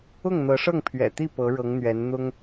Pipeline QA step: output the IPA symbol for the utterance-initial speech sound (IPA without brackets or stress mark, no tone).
ʊ